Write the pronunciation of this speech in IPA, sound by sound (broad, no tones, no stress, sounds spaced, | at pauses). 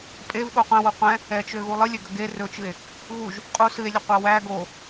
pʼ e v ɠ o qʷ ɛ̃ w o qʷ ɛ̃ | ɛ t͡ʃ ø ɣ u lˠ ɨ lʲ ø ɡ ə ɡ e r ɵ t͡ʃ ɨ e̯ | ɣ u ʒ | qʼ u s ɨ e̯ lʲ ə qʷ a w æ ɡ o